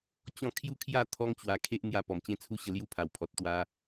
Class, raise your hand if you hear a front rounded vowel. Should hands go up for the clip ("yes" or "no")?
no